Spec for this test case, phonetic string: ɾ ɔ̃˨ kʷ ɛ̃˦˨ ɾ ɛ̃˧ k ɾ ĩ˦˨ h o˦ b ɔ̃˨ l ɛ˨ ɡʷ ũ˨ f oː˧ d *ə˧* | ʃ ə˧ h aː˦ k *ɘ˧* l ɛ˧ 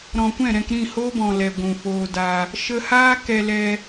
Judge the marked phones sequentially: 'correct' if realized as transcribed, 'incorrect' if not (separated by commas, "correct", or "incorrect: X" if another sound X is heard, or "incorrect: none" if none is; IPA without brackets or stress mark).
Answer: incorrect: a˧, incorrect: ɛ˧